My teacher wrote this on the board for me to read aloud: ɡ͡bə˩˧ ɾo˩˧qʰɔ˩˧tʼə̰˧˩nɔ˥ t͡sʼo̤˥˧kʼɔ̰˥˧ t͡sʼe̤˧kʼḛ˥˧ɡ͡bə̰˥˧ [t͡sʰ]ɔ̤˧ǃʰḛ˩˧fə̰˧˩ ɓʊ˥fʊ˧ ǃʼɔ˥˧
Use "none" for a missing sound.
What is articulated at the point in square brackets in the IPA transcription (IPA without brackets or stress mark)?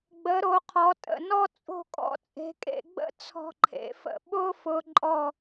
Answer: t͡sʰ